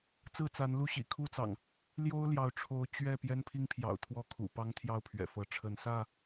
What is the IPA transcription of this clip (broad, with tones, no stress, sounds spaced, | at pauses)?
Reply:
t͡s ɹ̩˥˨ t͡s a˨˦ n l u˥˨ ɕ ḭ˨˩ kʰ u˥˨ t͡s ɑ̰˨˩ ŋ | l j o˦ ʊ̯ l j ɑ˨˦ ʊ̯ ʈ͡ʂʰ o˨˦ ʊ̯ t͡ɕ ɥ ɛ˥˨ p j ɛ˦ n pʰ i˦ ŋ pʰ j ɑ̰˨˩ ʊ̯ t̪ʰ w ɔ˥˨ kʰ ṵ˨˩ p ɑ˦ ŋ t̪ʰ j ɑ˥˨ ʊ̯ pʰ ɥ ɛ̰˨˩ f ɤ˨˦ ʈ͡ʂʰ ə˨˦ n s ä˥˨